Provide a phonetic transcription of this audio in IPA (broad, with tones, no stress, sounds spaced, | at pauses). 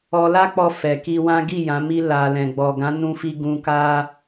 ɔ˧ l a˦ k͡p ɔ˧ f ɛ˨ k i˧ w ã˦ ɡ i˦˨ j ã˨˦ m i˦ l a˧ l ɛ̃˨ ɡ͡b ɔ˨ ɡ ã˨˦ n ũ˦ f i˦ ɡ ũ˧ k a˦